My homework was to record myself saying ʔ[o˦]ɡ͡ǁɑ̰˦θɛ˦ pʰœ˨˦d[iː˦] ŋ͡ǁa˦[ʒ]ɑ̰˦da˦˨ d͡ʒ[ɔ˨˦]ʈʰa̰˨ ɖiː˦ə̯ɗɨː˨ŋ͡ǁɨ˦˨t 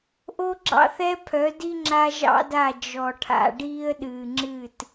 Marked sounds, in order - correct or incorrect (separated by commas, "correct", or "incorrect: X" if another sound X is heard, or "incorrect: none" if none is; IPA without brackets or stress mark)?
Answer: correct, incorrect: i˦, correct, incorrect: ɔ˨